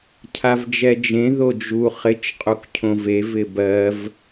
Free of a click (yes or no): yes